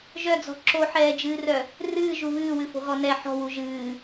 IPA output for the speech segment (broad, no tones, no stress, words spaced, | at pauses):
ʒœd͡zɔ̤ ǁoħɛːd͡ʒɨːrœ | rɨːʒu βɨːwɨfo̤ɣɔ nɛ ħɔ̤wu ʒɨː